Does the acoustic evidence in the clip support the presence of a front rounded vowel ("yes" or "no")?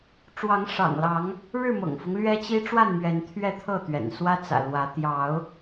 no